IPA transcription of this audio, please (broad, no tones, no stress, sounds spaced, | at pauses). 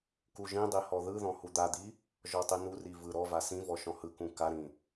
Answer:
k u ʒ ĩ dˤ i h ɔ ð ɯ ð ɔ̃ h u d̪ a d̪ i | ʒ ɔ tˤ i n u r i v ɯ ɾ ɔ v a s ĩ v ɔ ʃ ɔ̃ h ɯ k ũ k a ɾ ĩ